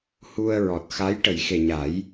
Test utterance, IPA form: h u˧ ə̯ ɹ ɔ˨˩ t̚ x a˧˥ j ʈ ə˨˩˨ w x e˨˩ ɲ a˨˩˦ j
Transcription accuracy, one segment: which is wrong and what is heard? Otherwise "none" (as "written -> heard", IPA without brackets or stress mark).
w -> j